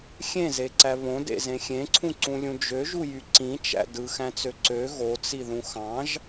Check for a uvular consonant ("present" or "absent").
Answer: absent